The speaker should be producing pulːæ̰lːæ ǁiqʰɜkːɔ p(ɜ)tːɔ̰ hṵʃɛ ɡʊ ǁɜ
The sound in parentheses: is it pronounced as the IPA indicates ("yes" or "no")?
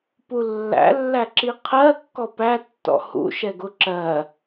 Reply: no